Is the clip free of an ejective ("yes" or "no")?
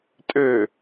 no